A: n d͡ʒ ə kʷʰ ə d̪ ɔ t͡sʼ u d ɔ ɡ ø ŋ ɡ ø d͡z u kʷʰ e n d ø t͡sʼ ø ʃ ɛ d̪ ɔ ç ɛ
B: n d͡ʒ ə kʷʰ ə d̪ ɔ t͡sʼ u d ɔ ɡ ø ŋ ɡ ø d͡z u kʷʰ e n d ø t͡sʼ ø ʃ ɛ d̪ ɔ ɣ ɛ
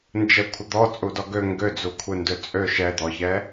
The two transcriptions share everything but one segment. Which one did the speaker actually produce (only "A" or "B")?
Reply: A